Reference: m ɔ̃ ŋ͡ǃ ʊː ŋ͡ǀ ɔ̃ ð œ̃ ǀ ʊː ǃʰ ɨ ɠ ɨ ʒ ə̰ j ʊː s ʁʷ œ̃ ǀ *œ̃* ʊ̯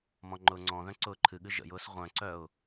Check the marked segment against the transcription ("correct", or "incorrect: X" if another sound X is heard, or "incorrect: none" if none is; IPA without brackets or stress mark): incorrect: œ